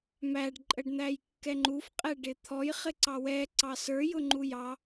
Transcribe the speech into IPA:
m æ ɖ ǃʼ ə ɖ n̪ æ j kː ɛ ŋ͡ǃ u f qʼ ɛ ɖ ɪ t̪ʰ ɔ j χ ɪ ǀ ɑ w ɛ ǀ ɑ s ə˞ j ʊ ŋ͡ǃ u j ɑ

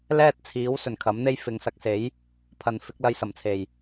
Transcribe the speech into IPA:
l ɛː˥ t̚ t͡sʰ iː˨˥ w s ɵ˨˩ n kʰ ɐ˨˥ m n̪ e˥ j f ɪ˨˧ ŋ s ɐ˨˥ k̚ s e˨˥ j | pʰ ɐ˨ n f ɪ˨˥ k̚ l ɐ˧ j s ɐ˨˩ m t͡sʰ e˨˩ j

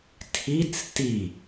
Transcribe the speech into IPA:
tʰ i t͡s t i

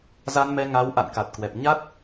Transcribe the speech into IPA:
z a˧ n m ɛ˧ ŋ a˨˦ w ʔ a̰˧˨ n k a˨˩ t̚ k w ɛ˨˩ p̚ ɲ a˦˥ t̚

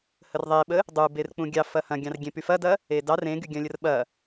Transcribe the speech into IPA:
h ə r ðˤ e ɓ ə | dˤ u b e r k͡p ũ ɡʲ ɑ f ɐ h ɐ̃ ɡʲ ɑ̃ r ɡʲ ẽ p y f ɐ d ɐ | e d ɑ r ẽ ɡ y ɡʲ ɐ̃ lʲ ə r ɓ ɐ

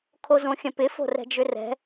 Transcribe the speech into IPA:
kʰ o z õ xʲ ə̃ p ɪ f o̤ r ɛ̤ d͡ʒ ʏ r ɛ̤

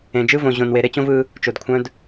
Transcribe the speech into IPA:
ẽ˨ d͡ʒ ɯ˦ v õ˨ ʑ õ˨ n w e˨ ɾ e˦ t͡ɕ õ˦ v ɯ˦ | t͡ʃ o˨ d kʷʰ œ̃˦ d

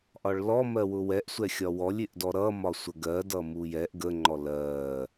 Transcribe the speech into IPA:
ʔ ɒ ɭ l ɔ m ɜ w ʊ w ɛ ʔ sʷ ɛ xʲ ɒ w ɔ lʲ ɪ ʔ d ɔ ɾ ʌ m ɒ sʷ ə ɡ ɜ d ʌ m u j ɛ ʔ ɡ ə ŋ͡ǃ ɔ l ɜ

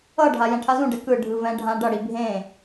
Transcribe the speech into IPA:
ʌ ɖʱ a j ɛ̃ ʈʰ a z ũ ɖ ɛ k ɯ ɖʱ ɯ v ɛ̃ ɖʱ ã ɖ ʌ ɽ i bʱ ẽ

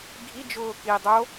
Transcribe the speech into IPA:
ɡʱ i d͡ʒ ʊː k i dˤ o

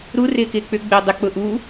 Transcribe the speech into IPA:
ɾ u r ɪː k ɪː k͡p ʏ ɡ͡b ɪː dˤ ɪ k͡p ʊ ʔ u

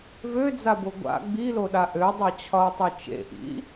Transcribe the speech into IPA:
v ø d͡z a b o ɡʷ a̰ ɡ͡b i l o ɗ a ʔ ø dˤ ɤ t͡ɕʰ ɒ o̯ tˤ ø t͡ʃ ḛ ʔ ḭ

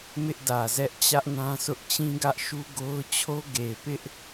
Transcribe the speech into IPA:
m ɪ˦ ʔ d ä˨ z ɛ˦ ʔ t͡ɕ ä˦ ʔ n ã˦ s ʊ˦ ʔ t͡ɕ ĩ˦ ɡ ä˦ ʔ ʃ u˦ ɡ o˦ ʊ̯ t͡ɕʰ o˦ ɡ e˨ ɪ̯ p ɪ˦ ʔ

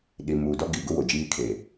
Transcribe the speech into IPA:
ɗ i˨ m uː˨ d ɔ˦ ɡ i˨ ɡ ʊ˦ w o˨ d͡ʒ iː˦ kʰ e˨

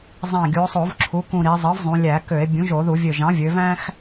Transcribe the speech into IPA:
zˤ æ̃˧˩ ɡʲ u˩˧ o̯ sˤ o˧˩˧ v ǁʰ u˩˥ k ũ˧˩ ɾ i˩˧ zˤ ɯ˩˥ v zˤ ũ˩˧ lʲ æ˧˩˧ k ø˧˩˧ e̯ bʲ ũ˩˥ ʒ o˧˩˧ ð u˧˩˧ vʲ ø˧˩ ʒ ɑ̃˩˥ vʲ ø˩˧ v æ̃˥ x

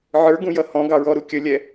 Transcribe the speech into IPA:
ʕ ə˞ ɡ ũ j ʌ h ɔ̃ ɡ ɑ ɹ ɔ ɾ u kʲ ə lʲ ɛ

